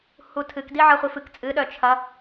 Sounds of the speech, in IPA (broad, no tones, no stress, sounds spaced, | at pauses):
h u tʰ ɨ k d i ʕ ɐ χʷ i f ɨ k t͡sʼ ɨ ɗ œ t͡ʃʰ ɐ